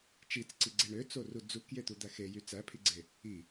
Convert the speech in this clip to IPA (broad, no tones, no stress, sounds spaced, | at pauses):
t͡ʃ i t͡s ǀ i ɡ͡ǀ e ɳ ø t͡s o r u d͡z u k j e t̪ u d̪ æ x e j y t͡s æ pʰ i ɡ͡ǀ e | i